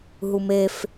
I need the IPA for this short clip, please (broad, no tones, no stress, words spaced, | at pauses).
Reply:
ɦumef